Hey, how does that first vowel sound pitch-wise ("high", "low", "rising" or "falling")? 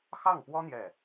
falling